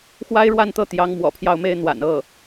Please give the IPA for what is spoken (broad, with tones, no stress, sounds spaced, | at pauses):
x w a˥ ɪ̯ ɻ w a˥˧ n t̪ ɤ˥˩ t̪ j ɑ˧˥ ŋ m w ɔ̰˨˩ pʰ j ɑ˥˩ ʊ̯ m e˥ ɪ̯ n̪ w a̰˨˩ n ɤ˥˩